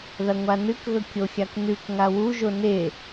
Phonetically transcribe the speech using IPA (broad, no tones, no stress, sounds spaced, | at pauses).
ð ɐ ŋʷ a n ɨ k ɣ ɵ kʲ o xʲ a k n ʉ k ŋ a w u ʒ o n e